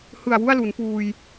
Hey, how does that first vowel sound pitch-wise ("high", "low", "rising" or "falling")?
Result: low